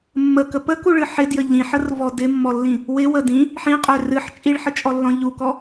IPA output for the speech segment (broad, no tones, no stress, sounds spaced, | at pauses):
mː ə k ə p ə k u ɭ ɨ ħ ɪ d j ə ʎ ĩ ħ ə r v ɔ d ɪ mː ɔ lː ĩ | w ɪ w ə d ĩ | ħ ĩ qʼ ø r ɨ ħ t͡ʃʼ i ɭ ħ ə t͡ʃʼ ɔ lː ɔ̃ ʎ u k ɔ